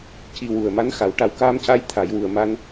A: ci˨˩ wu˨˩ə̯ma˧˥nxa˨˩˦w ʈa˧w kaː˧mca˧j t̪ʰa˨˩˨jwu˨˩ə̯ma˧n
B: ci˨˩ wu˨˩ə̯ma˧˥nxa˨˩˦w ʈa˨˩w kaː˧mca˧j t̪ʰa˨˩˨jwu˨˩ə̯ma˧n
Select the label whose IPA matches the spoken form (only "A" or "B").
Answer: B